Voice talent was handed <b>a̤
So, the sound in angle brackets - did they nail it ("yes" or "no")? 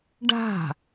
no